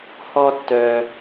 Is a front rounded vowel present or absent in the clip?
present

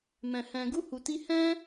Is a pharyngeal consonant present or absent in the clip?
absent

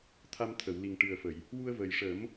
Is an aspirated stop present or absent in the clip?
present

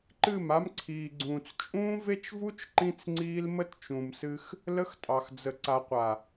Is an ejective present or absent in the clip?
present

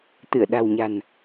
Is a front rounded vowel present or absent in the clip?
absent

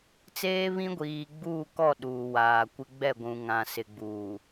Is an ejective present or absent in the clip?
absent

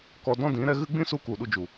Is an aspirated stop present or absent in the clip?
absent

